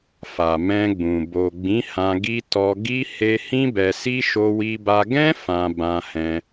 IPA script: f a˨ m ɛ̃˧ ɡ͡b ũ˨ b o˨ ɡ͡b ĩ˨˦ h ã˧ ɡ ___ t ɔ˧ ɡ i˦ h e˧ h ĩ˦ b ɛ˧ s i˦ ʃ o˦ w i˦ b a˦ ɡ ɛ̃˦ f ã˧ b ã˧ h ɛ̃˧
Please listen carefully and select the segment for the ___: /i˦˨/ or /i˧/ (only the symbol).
i˧